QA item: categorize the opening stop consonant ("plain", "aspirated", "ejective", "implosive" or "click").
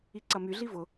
click